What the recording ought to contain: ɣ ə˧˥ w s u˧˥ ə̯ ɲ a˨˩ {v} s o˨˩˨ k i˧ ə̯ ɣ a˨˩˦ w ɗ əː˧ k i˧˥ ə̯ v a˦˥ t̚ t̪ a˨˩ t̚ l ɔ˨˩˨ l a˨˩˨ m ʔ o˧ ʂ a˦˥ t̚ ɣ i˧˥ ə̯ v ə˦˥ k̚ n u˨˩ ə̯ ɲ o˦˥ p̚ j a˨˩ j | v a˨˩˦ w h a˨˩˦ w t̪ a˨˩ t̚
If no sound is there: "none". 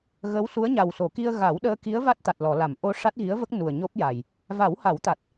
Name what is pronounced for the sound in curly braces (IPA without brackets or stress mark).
w